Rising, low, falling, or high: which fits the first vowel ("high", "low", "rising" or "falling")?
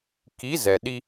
rising